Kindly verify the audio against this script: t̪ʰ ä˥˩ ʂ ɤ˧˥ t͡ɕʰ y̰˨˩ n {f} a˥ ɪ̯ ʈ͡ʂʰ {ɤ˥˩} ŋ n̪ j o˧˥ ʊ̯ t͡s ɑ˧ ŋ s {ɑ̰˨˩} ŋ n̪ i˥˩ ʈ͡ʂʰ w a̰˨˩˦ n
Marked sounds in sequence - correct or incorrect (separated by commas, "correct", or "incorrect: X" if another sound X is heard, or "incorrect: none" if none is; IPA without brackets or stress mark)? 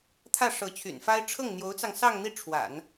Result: correct, correct, incorrect: ɑ˥˧